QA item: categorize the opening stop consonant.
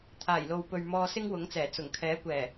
aspirated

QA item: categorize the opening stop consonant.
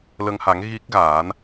plain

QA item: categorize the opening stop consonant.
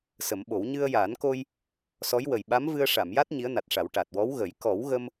implosive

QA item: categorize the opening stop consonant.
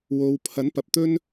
aspirated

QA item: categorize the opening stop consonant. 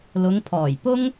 aspirated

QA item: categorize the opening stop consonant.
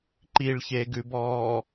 click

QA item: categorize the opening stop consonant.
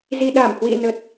implosive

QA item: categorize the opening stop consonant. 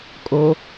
ejective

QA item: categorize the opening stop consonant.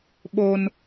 implosive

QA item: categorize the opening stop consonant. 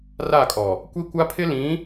ejective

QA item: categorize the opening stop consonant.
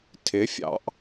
aspirated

